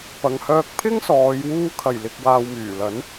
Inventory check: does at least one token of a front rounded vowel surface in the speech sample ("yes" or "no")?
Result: yes